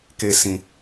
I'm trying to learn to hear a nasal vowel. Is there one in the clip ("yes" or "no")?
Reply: yes